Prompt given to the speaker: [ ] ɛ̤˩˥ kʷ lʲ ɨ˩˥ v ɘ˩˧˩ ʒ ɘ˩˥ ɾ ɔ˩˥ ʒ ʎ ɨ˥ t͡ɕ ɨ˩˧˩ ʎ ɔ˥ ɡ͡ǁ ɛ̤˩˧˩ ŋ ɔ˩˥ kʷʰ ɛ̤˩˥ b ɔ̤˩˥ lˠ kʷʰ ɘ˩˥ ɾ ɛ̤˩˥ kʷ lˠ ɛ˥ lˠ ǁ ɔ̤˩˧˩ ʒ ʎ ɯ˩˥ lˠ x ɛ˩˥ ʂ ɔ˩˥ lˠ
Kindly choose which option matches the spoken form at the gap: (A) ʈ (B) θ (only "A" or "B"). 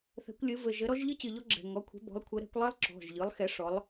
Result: B